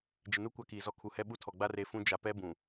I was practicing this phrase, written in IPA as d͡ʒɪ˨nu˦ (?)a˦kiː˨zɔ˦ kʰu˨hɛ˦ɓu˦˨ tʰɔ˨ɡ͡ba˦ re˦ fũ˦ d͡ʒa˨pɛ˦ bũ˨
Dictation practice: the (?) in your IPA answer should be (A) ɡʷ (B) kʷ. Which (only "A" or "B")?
B